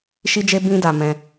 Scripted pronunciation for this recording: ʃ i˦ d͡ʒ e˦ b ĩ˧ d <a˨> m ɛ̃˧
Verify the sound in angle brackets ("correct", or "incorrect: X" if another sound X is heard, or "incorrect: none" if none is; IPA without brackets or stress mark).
correct